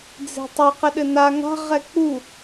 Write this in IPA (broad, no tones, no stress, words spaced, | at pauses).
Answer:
d͡ze̤tˤe qɘɗɘna ŋa̤ ʁɛk͡pu